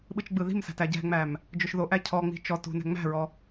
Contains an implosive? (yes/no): yes